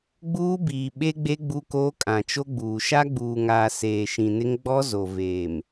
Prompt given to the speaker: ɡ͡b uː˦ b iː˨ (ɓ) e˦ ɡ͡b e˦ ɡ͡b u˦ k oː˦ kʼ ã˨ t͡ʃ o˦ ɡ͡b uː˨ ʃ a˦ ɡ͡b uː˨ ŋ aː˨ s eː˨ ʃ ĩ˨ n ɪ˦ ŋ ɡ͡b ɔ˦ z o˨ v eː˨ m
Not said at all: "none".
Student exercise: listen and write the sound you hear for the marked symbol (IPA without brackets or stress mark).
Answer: ɓ